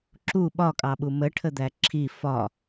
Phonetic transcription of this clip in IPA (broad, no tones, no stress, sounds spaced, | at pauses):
ǁ u ɓ ɒ kʼ ɑ ɓ u m ə ʈʰ ə d̪ æ ǁʰ i f ɒ